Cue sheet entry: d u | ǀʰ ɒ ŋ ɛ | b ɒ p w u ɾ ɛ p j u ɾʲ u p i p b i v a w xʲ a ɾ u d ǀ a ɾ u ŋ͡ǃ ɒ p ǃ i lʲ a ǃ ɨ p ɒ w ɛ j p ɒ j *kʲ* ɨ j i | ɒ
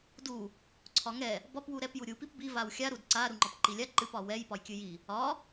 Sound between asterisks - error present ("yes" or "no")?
no